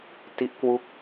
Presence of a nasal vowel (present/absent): absent